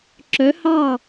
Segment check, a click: present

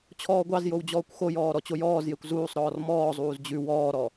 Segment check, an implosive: absent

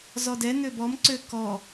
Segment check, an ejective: absent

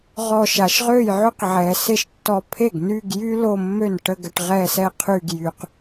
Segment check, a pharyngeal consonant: present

